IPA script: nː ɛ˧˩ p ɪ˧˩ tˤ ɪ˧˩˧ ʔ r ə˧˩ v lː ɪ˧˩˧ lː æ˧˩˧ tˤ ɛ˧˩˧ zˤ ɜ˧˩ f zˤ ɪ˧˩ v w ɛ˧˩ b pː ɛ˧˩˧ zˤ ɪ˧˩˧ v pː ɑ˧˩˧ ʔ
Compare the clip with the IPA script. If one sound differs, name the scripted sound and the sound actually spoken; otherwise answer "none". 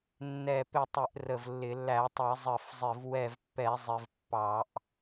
b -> v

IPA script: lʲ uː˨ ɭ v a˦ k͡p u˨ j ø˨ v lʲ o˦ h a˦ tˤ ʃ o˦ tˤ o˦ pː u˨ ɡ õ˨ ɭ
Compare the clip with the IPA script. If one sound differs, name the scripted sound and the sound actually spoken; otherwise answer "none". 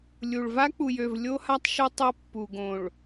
uː˨ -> u˨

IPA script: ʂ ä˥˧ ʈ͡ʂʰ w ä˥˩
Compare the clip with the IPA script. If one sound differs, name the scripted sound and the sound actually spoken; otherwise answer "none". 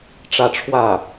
ʂ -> ʈ͡ʂ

